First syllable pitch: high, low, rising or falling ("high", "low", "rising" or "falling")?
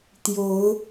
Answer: rising